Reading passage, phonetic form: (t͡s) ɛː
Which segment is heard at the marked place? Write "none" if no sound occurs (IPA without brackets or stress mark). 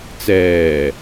t͡s